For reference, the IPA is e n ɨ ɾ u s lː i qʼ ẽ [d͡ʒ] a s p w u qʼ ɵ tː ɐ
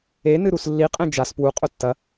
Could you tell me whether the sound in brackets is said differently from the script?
no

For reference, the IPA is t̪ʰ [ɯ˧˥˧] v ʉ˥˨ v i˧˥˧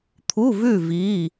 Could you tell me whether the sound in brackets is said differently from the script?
yes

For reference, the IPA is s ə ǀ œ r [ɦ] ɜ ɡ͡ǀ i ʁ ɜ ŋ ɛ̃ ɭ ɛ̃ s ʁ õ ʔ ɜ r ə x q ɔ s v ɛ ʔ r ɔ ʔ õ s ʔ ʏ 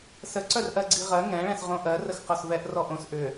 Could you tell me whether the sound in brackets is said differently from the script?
yes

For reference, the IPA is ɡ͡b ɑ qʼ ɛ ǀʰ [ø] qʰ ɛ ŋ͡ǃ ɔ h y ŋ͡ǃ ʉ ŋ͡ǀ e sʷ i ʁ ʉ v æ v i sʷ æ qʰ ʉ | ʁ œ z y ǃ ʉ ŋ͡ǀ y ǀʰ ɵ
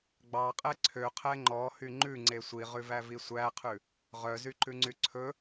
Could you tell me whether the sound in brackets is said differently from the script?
no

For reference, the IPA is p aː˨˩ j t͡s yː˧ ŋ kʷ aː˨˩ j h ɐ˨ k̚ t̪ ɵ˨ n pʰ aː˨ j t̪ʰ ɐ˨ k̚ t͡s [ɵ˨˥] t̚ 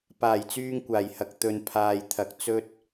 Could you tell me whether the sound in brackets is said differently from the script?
yes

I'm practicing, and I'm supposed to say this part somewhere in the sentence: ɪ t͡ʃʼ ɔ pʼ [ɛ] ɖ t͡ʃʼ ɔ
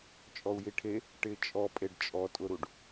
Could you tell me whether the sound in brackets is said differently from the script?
yes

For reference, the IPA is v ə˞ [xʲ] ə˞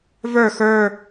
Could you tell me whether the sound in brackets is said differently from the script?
yes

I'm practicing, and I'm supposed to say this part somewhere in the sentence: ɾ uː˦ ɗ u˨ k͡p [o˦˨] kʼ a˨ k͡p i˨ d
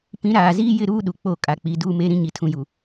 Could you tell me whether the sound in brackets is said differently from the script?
no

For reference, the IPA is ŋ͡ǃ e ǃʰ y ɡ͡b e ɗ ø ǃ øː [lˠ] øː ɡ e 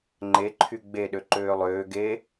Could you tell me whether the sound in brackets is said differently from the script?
no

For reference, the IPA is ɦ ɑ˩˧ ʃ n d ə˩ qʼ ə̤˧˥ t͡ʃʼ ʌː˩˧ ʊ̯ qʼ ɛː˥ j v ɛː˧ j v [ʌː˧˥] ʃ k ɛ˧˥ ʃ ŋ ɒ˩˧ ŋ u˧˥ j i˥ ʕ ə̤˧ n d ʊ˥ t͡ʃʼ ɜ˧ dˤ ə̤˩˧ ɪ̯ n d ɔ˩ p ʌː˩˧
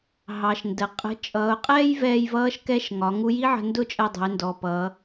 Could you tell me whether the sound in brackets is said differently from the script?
no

